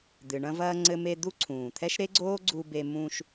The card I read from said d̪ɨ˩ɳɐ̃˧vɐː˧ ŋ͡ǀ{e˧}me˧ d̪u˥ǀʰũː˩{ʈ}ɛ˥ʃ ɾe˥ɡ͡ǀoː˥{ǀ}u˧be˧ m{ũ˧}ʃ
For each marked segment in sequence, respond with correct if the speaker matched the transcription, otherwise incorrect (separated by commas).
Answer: incorrect, incorrect, incorrect, correct